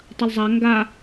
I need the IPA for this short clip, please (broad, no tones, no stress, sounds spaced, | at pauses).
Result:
tˤ ɐ l zˤ a ŋ ɡ a